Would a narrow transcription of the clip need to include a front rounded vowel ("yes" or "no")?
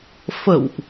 no